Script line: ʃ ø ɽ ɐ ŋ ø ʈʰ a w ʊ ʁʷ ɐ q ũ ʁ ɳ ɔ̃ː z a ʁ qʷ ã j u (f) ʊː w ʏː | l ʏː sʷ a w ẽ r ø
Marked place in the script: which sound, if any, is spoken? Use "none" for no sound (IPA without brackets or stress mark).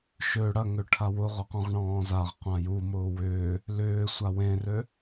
m